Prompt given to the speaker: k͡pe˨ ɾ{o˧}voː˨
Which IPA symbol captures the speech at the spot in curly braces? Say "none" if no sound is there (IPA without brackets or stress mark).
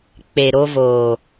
o˧